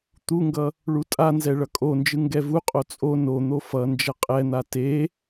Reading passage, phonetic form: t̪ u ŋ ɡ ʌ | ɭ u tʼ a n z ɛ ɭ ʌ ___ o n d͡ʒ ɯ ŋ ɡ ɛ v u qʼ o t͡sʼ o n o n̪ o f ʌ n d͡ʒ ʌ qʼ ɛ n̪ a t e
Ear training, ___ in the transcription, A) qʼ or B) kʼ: B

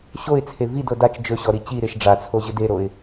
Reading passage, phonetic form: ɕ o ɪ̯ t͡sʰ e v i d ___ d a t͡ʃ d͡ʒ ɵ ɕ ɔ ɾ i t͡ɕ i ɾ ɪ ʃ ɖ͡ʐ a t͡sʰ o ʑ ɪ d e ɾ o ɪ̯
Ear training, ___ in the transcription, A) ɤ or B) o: A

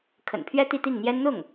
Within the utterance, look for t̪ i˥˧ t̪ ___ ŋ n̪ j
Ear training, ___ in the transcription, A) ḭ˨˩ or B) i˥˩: B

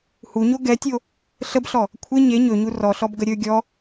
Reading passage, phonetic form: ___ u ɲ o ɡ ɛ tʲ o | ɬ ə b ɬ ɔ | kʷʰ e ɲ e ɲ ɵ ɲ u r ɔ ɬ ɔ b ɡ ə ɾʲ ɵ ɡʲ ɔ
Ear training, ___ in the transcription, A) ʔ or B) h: B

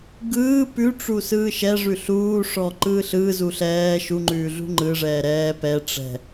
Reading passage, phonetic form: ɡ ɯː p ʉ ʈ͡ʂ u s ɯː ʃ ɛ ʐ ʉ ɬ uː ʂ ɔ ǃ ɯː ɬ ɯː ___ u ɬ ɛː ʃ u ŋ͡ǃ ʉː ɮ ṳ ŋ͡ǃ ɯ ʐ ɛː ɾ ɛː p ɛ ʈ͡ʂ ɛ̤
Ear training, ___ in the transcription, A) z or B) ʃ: A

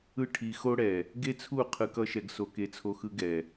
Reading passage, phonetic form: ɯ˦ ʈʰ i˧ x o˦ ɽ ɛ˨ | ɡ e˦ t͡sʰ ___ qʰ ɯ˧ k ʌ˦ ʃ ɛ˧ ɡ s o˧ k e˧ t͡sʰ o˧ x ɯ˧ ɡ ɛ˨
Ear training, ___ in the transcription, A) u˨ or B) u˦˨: B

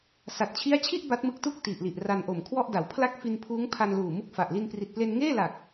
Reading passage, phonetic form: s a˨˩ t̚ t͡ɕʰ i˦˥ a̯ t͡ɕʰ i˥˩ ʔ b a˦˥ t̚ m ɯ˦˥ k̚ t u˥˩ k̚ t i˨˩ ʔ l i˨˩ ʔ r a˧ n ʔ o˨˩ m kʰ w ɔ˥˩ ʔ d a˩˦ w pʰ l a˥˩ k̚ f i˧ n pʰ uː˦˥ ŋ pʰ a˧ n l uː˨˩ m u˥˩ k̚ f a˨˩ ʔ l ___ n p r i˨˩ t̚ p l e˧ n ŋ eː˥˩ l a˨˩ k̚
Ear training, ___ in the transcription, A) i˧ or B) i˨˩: A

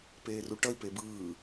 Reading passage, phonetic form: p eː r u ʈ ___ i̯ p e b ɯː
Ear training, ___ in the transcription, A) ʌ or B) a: A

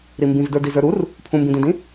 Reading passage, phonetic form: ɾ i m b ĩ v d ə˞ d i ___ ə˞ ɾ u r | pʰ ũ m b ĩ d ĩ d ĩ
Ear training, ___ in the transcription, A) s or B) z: B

